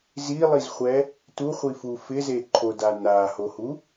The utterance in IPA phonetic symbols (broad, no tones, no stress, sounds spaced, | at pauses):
z i lˠ i z χʷ ɛ | t u χʷ i f u f ɪ z e ǃʰ o d a n a h o h u